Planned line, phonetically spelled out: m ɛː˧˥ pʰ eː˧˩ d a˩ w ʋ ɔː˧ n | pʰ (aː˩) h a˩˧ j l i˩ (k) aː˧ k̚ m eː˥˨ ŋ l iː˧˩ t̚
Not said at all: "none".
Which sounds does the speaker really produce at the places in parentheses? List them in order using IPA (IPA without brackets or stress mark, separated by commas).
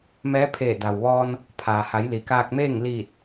aː˩, k